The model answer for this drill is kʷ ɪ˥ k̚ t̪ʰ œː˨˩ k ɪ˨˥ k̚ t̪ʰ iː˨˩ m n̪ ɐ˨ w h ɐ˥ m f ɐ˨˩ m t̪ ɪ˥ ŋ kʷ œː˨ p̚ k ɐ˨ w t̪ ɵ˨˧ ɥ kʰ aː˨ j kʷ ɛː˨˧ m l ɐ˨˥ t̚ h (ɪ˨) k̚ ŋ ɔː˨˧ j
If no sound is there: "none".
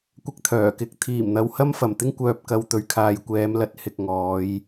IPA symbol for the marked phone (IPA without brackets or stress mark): ɪ˨